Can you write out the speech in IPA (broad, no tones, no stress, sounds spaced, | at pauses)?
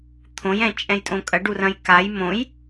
t̪ʰ õ j ɛ̃ t͡ʃʼ ɛ̃ j tʼ õ kʼ ɐ ɖ u r ɐ̃ j k a j m õ j